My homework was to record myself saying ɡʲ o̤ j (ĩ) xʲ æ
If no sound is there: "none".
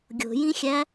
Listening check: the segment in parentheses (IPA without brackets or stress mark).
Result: ĩ